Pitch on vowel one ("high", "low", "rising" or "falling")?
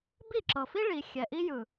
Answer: falling